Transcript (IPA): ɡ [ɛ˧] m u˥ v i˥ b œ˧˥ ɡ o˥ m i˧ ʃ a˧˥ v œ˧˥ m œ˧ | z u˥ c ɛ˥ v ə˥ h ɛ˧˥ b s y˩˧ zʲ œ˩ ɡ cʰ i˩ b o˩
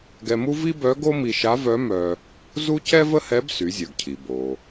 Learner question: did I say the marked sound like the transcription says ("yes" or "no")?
yes